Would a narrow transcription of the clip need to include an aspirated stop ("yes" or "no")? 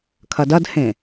yes